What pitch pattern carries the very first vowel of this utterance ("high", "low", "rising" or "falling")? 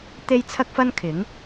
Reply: high